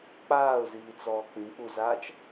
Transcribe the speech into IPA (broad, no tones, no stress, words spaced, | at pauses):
k͡paːʊ̯ziː t͡sɔːk͡pĩk͡puzaːt͡ʃ